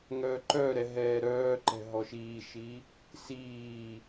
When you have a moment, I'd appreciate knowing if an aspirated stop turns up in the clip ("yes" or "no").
no